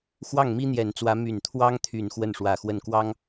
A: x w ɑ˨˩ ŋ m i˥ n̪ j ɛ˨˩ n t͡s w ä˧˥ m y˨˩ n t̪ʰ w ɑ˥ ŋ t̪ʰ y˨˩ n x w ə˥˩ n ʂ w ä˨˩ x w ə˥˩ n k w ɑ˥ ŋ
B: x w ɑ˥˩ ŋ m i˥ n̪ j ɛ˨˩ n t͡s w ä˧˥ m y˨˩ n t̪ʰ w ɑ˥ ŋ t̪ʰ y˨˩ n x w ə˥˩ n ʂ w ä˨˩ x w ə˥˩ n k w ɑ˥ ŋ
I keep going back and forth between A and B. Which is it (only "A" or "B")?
B